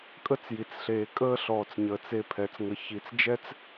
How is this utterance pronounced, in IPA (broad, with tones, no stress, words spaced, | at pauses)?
kʼə˦t͡sji˨t͡sɬeː˨ kʼəː˦ɬɔː˨t͡sɲəː˨t͡s e˧ pʰɛ˨˦t͡sŋə˧ çi˧t͡s d͡ʒɛ˦t͡s